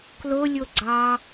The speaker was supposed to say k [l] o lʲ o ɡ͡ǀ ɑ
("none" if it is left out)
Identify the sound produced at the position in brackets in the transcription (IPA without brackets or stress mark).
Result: l